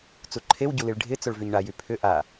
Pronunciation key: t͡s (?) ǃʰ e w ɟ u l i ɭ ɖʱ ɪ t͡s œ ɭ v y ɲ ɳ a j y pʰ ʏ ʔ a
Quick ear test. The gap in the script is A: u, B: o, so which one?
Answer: A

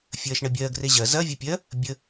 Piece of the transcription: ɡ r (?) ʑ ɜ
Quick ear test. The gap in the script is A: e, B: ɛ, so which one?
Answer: A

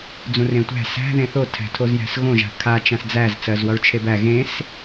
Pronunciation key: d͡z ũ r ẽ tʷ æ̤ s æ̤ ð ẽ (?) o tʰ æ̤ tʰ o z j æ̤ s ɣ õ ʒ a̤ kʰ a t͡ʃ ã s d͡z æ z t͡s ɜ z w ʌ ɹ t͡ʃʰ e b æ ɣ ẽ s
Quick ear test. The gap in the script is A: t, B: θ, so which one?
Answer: B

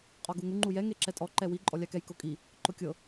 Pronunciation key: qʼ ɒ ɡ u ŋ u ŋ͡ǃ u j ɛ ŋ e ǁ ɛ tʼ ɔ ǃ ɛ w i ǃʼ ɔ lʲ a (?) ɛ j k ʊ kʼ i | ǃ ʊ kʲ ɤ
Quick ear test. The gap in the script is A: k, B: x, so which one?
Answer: A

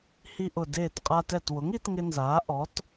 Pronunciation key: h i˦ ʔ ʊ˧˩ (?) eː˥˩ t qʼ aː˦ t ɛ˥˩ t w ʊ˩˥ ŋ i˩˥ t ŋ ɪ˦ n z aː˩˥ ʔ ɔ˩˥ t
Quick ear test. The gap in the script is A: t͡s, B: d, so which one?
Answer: B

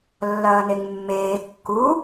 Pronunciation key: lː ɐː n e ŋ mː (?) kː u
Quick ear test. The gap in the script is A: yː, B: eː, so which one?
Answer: B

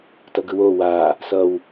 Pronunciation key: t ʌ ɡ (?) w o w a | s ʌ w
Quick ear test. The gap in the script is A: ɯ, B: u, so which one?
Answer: A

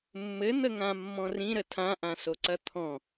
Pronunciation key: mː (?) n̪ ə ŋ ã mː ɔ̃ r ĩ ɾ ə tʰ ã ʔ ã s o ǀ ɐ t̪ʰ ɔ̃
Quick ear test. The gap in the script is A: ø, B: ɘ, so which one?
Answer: B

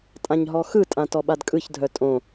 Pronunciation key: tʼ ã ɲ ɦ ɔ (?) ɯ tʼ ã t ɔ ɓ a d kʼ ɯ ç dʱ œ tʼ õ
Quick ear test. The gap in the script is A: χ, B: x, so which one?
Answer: B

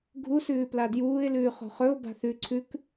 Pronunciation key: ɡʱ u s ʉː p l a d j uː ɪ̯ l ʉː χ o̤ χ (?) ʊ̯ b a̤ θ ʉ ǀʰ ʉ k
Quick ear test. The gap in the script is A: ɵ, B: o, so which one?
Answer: A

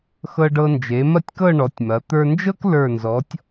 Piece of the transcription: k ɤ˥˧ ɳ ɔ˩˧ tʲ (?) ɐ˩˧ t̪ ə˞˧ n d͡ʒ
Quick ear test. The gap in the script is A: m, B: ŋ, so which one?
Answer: A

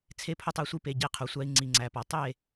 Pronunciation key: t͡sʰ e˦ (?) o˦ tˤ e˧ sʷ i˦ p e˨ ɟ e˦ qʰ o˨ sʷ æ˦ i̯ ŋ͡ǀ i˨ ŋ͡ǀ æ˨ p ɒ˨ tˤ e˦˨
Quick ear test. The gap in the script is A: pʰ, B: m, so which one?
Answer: A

